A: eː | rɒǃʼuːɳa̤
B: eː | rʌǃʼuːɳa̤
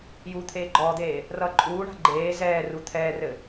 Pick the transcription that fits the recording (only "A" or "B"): B